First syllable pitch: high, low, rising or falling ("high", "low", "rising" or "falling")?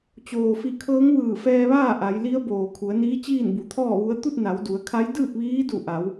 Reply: low